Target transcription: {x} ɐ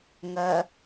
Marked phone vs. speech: incorrect: ŋ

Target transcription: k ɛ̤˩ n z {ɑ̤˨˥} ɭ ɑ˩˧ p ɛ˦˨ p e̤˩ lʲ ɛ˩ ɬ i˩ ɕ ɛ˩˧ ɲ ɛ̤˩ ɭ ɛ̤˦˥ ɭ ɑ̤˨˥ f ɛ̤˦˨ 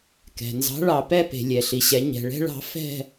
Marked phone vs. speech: correct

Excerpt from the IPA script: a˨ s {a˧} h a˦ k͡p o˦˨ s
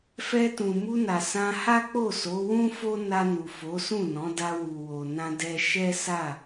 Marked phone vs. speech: incorrect: ã˧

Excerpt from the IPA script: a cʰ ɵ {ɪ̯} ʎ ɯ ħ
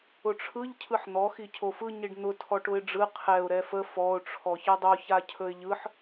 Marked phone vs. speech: correct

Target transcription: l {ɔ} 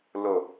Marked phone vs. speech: incorrect: o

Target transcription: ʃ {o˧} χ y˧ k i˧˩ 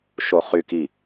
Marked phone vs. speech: correct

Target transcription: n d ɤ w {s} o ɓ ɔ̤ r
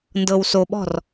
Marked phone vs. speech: correct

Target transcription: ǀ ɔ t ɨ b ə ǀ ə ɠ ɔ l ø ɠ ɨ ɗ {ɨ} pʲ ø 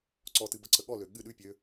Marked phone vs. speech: incorrect: ʉ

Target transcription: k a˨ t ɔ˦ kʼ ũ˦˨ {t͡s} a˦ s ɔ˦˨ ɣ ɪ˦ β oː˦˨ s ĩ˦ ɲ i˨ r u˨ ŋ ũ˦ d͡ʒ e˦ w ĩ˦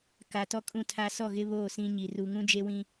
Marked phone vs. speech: incorrect: tʰ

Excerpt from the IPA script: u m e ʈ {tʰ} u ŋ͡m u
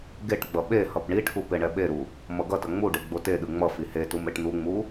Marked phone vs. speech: incorrect: n̪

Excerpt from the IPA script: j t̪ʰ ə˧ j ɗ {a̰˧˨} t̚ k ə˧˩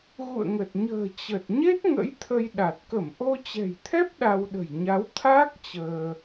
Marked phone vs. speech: incorrect: a˨˩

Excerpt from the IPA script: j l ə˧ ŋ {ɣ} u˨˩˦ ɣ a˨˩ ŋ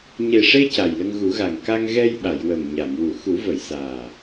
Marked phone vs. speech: correct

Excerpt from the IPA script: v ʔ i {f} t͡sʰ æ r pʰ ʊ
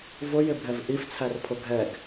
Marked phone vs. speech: correct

